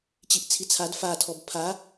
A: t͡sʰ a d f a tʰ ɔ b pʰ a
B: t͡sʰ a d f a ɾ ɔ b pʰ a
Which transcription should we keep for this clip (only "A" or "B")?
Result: A